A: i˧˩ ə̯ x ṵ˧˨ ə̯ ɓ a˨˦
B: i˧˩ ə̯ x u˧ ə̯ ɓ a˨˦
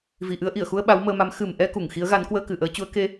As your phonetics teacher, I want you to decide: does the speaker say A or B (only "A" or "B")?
B